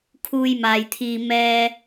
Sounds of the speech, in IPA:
kʰ uː˧ j m aː˨ j t̪ʰ iː˧ m ɛː˥

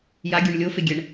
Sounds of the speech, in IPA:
j a ɡʲ u ɳ lʲ o f e ɡʲ ɛ ɳ

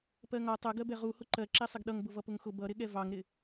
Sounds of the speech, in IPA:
p ɜ ŋ ɒ tˤ ʌ ɡ ɜ b ɛ ʁ u h ʊ ǃ ɜ ǁ ɛ sˤ ɪ ɡ ɗ ʌ ŋ b ʊ v ʌ p ʊ ŋ x ʊ b ʌ ɾ ɪ ɠ ɛ v ɑ ŋ ɾ ɪ

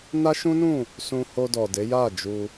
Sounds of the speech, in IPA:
n a˦ ʃ ũ˦ n ũ˦˨ | s ũ˧ h o˧ d ɔ˨ d e˨˦ j a˦˨ d͡ʒ u˧

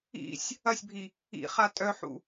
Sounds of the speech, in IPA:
ḭ sʲ | ɐ sʲ bʱ i | ḭ χ a tʼ œ ħ ṵ

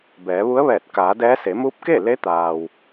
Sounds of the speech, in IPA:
b ɛː˩˧ ʋ u˧˥ ə̯ ʋ ɛː˧˩ t̚ k aː˩˧ d ɛː˧˥ s e˩˧ m u˧˥ p̚ k e˥˨ l e˧˥ t̪ aː˩ w

